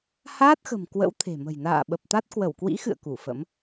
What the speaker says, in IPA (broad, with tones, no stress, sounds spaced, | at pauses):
h aː˦˥ t̚ x ə̤˨˩ m k w ə̰˧˥ w t̪ʰ e̤˨˩ m ə̤˨˩ j n a̰ː˧˨ ɓ ə˨˩ p̚ t̪ a˦˥ t̚ k w ə˧˩ w k w ḭ˧˥ x ɨ̰˧˨ ə̯ k u˧˩ f ə̰˧˥ m